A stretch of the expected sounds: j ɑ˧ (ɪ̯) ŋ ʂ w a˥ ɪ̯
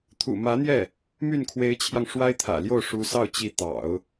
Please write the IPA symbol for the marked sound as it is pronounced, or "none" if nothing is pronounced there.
none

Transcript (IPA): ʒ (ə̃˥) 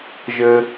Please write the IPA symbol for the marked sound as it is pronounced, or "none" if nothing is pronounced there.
ə˥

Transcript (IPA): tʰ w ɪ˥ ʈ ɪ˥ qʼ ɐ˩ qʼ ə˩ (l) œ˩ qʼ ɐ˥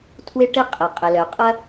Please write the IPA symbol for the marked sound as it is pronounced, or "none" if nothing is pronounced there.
l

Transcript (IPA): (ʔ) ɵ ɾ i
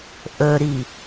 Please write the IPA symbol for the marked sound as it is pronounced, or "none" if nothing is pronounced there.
ʔ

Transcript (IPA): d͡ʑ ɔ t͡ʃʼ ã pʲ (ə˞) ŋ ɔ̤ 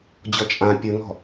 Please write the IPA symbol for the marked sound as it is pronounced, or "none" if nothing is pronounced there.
ə˞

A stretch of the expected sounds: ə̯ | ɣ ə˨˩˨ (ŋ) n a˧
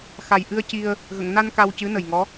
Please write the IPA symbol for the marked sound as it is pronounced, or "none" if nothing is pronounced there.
ŋ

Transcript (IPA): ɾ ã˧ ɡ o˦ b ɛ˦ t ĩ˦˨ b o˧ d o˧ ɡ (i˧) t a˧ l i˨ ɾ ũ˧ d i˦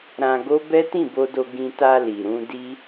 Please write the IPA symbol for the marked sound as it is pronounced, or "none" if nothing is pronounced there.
ĩ˧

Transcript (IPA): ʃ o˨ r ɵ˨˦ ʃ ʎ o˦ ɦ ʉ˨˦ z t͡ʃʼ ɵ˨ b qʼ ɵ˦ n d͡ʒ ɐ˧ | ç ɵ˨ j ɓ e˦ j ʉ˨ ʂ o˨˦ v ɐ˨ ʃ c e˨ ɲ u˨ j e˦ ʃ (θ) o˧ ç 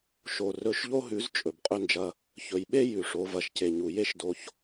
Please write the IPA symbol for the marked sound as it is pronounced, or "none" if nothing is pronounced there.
d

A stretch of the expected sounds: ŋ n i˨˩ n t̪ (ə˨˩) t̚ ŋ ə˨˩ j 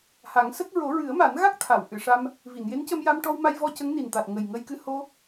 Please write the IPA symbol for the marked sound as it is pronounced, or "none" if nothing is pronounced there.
a˨˩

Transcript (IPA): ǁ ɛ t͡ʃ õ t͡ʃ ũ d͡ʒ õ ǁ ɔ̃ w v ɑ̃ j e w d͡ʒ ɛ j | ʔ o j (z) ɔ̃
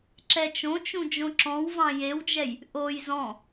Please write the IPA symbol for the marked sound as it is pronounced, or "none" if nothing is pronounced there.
z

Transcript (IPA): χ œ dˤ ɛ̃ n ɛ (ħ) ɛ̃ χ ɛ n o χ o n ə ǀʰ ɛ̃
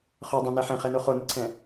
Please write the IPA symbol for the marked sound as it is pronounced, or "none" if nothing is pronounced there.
ħ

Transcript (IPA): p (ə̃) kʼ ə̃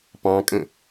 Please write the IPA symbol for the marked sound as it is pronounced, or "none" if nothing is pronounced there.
ɑ̃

